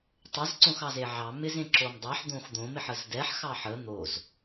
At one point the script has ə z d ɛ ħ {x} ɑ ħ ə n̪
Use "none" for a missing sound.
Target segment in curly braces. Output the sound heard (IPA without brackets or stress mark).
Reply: x